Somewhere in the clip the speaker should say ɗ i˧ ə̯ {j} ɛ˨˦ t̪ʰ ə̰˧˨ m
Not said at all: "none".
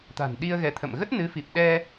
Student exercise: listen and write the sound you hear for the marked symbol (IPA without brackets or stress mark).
ɣ